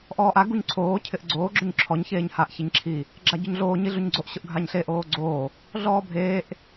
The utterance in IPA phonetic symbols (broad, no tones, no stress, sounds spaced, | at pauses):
ʔ ɔː ʔ a ɡ u ɲ ǀʰ oː cʰ ɪ ʔ ɡ͡ǀ oː ɡ͡ǁ ʊ ɲ ǁʰ ɔ ɲ ç eː ɲ h a ʔ ç e ɲ ǁʰ i | ɡ͡ǁ a ɟ ʊ ɲ ɮ oː ɲ i ɮ u ɲ ɡ͡ǀ o ʔ ɕ ʊ ʔ ɡʱ a ɲ ɬ e ʔ oː ɡ͡ǀ oː | ɮ ɔː bʱ eː ʔ